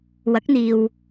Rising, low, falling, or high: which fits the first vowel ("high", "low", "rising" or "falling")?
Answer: rising